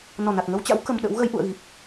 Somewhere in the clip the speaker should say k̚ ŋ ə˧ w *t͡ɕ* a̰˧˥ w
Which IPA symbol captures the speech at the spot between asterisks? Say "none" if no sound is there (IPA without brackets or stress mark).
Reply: t͡ɕ